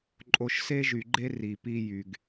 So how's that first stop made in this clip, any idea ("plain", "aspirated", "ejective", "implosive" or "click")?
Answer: click